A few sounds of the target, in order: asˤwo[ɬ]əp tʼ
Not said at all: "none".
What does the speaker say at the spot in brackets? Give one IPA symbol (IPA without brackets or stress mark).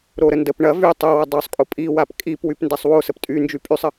s